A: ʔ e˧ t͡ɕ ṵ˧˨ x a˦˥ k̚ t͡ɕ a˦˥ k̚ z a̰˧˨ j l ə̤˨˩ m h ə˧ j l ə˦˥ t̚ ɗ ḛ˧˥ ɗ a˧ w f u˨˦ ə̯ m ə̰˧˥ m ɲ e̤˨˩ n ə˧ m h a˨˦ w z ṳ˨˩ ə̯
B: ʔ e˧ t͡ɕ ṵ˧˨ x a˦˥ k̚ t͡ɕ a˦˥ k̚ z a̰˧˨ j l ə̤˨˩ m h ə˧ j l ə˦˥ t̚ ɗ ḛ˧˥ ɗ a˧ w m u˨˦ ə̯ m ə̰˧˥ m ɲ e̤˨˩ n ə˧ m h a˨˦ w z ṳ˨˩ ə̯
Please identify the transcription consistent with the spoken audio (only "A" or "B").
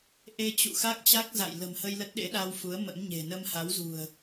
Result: A